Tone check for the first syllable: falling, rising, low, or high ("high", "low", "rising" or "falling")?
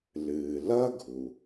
low